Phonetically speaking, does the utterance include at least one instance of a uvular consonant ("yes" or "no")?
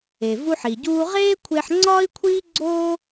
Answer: yes